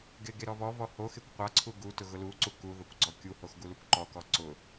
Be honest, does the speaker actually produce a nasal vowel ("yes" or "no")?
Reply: no